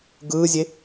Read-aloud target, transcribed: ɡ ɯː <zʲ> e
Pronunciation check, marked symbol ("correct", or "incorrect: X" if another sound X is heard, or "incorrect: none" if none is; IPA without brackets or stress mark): correct